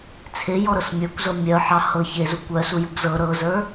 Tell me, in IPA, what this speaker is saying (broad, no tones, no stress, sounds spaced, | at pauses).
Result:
t͡sʰ e j ɔ ɾ ɤ s mʲ ə˞ kʷ z ɤ mʲ œ ħ ɑ h ɤ ç e z u kʷ œ s u j u ɡ z ɤ ɾ ɤ z ə˞